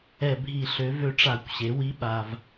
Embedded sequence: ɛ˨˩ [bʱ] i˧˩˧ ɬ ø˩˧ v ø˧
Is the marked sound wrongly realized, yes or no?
no